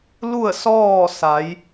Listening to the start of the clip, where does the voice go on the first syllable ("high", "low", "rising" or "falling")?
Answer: falling